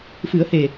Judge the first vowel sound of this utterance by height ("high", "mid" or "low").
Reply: high